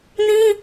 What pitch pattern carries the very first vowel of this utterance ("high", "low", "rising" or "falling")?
high